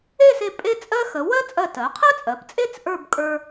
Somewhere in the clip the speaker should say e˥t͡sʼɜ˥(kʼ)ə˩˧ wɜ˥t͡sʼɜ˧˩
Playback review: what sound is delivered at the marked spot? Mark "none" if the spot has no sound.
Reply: x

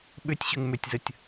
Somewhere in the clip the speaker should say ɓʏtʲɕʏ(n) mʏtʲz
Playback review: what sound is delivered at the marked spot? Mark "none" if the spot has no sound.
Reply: ŋ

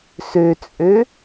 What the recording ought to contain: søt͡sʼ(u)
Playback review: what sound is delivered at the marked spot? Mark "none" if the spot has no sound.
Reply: ø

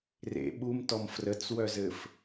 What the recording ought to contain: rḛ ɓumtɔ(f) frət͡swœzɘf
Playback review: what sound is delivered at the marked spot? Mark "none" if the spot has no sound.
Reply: m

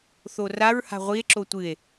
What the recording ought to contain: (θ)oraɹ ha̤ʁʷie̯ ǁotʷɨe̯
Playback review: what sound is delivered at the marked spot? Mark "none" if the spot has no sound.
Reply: θ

